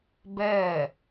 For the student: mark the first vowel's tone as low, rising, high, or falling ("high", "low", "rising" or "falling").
falling